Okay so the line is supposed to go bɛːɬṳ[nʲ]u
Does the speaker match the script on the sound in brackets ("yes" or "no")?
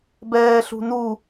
no